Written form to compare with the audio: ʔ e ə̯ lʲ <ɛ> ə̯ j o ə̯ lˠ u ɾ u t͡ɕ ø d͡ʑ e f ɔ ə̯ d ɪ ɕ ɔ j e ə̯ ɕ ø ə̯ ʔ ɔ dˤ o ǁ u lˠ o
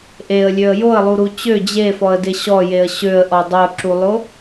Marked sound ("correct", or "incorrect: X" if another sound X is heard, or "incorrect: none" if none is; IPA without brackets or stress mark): incorrect: ø